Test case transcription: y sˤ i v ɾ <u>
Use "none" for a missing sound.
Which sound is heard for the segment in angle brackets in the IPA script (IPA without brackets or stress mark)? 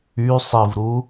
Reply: u